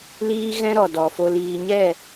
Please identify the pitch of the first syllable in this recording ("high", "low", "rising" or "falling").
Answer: high